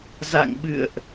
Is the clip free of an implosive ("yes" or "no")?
no